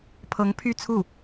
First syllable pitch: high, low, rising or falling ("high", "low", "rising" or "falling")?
rising